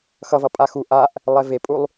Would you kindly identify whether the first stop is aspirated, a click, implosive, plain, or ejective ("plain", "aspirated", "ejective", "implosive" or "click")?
ejective